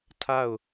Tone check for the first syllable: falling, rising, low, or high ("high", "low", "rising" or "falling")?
falling